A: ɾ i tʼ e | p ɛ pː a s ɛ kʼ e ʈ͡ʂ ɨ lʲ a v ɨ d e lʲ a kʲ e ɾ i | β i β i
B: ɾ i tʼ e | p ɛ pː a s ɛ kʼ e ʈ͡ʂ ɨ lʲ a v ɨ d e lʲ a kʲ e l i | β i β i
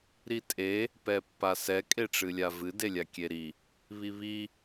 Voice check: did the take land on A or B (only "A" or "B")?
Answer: A